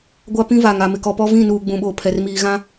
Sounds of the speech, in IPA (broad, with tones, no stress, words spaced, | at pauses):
ɡʷa˦pĩ˦va˨ŋ a˨mɪ˨kɔ˨pɔ˦ vĩ˦˨nuː˨ɡ͡bũ˨ɓoː˨ pʰɛ˨r miː˨ɣã˦